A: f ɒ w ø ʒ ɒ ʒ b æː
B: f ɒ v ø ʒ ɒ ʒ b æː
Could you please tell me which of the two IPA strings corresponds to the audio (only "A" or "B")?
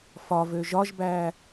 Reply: B